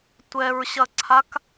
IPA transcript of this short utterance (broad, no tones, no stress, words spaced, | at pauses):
tʷɛɹɕɐǀʰak